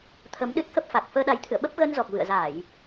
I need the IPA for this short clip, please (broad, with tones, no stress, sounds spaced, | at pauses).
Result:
t̪ʰ ə˨˦ m ɗ ɨ˦˥ t̚ k ə˦˥ p̚ f a˨˩ k̚ f əː˧ ɗ a˨˦ j t̪ʰ ɨ̰˧˨ ə̯ ɓ ə˦˥ p̚ ɣ ə˧ n z ɔ˨˩ k̚ v ɨ̰˧˨ ə̯ z a˧˩˨ j